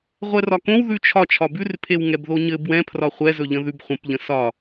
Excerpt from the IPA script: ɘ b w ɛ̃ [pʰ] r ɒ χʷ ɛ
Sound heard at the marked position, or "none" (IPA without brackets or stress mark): pʰ